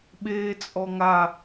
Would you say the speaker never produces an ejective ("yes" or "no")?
no